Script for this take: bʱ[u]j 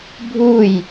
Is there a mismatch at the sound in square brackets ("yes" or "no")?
no